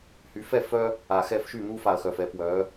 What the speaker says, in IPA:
h y˨˦ f ɛ˥˩ f œ˦ | a˨˩ x ɛ˥˩ f ʃ y˥˩ n̪ u˦ f a˨˩ ɐ̯ x œ˨˩ f ɛ˨˦ p w œ˨˦

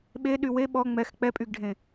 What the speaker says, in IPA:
ɓ e ɗ y w e ɓ ɔ ŋ͡m ɛ x k͡p ɛ pʼ y ɡ ɖʱ ẽ

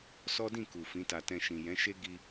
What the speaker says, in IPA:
s ɔ˦ d ĩ˦˨ k u˨ f ĩ˨˦ t a˧ t ɛ̃˧ ʃ ĩ˨ j ɛ̃˨˦ ʃ e˦ ɡ i˧

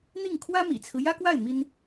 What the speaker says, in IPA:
n̪ i˥˩ ŋ kʰ w ä˥ m ḭ˨˩ t͡sʰ ɹ̩˦ j ä˥ k w a˥˩ ɪ̯ m i˥ n

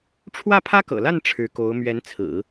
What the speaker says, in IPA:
ʈ͡ʂʰ w ä˥˩ pʰ ä˥ k ɤ̰˨˩ l a˥˩ n ʈ͡ʂʰ ɻ̩˧˥ k o˧˥ ʊ̯ m ɥ ɛ˧˥ n t͡sʰ ɹ̩˨˩˦

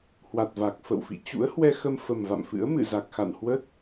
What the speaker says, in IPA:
h w a˨˩ t̚ v a˨˩ k̚ f ə̰˧˨ w f ḭ˧˨ t͡ɕ ṵ˧˥ ə̯ h w ɛ˧ x ə˧ m f ə˨˩ m v a̰˧˨ m f ɨ̰˧˥ ə̯ m ɨ̰˧˨ z a˨˩ k̚ x a̰˧˨ n h w ə˦˥ t̚

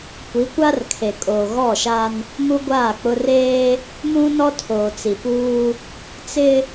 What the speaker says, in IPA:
kʷ i˨˦ kʷ a˦ r kʰ e˨ kʼ oː˨ ɣ ɔ˦˨ ʃ a˦ n | m u˦ ɡʷ aː˦˨ k͡p ʊ˦ r eː˦ | m ũ˦ n ɔ˦ tʰ oː˨ t͡s i˨ p uː˦ | t͡s ɪ˦

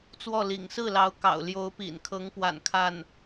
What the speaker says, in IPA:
t͡s w ɔ˥˩ l ḭ˨˩ ŋ s ɹ̩˥˩ l ɑ˧˥ ʊ̯ k ɑ̰˨˩ ʊ̯ l j o˧˥ ʊ̯ p ḭ˨˩ n kʰ ɤ˧˥ ŋ p w a̰˨˩ n kʰ a˥˩ n

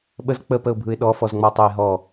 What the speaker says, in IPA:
ɓ ə z k͡p ə p ə ʊ̯ bʱ ɯ ɪ̯ ɗ ɔ f ɔ z ŋ͡m ɔ tˤ ø ɪ̯ ɦ ɔ

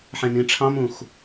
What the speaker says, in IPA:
ħ ẽ n ĩ ʈ͡ʂʰ ɑ̃ m ũ x

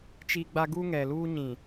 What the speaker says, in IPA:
t͡ʃ i˦ ɡ͡b a˦ ɡ u˦ ŋ ɛ˨ l uː˦ ɲ ĩ˨

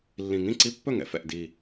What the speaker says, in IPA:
lː ĩ˨˩ ŋ ĩ˥˩ ǀ i˧˥˧ pː ɵ˥˩ ŋ ɛ̰˨˥ f ɛ̰˨˩ ʔ d iː˨˩

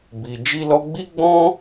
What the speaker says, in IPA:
b i˧ d͡ʒ i˦ l ɔ˦ ɡ͡b i˦ ɡ͡b ɔ̃˦

